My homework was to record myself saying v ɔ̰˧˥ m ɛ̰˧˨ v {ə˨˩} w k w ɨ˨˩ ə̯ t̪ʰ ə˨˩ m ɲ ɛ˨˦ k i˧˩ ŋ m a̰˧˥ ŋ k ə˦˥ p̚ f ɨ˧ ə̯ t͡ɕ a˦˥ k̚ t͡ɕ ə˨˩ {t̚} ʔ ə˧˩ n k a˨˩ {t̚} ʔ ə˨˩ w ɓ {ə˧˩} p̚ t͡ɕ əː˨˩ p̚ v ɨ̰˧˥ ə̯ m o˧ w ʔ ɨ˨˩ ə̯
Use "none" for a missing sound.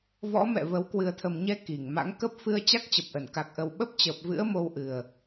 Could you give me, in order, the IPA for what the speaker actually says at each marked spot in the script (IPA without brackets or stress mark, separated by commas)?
ə˨˦, p̚, k̚, ə˦˥